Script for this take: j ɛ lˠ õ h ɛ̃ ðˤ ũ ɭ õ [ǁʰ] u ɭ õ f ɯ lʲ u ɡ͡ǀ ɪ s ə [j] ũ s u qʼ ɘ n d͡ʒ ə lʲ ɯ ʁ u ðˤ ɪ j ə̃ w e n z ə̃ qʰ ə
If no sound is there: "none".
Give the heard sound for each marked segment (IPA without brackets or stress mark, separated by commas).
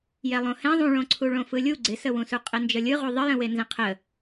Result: ǀʰ, w